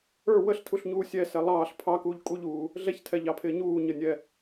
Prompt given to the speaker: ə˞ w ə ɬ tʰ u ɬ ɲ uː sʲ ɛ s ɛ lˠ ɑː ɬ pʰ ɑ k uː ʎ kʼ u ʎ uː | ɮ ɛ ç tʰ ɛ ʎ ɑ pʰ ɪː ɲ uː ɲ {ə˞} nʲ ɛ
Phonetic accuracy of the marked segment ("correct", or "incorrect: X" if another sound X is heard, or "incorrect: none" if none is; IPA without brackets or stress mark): incorrect: ə